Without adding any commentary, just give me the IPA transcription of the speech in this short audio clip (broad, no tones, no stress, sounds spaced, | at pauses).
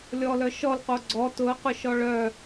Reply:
lʲ ɔ l œ ʃ ɔ l q o ɡ͡ǀ ɔ t ʊ ə̯ q ʊ ʃ ɔ ɭ œ